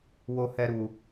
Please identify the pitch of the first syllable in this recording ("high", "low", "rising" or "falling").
high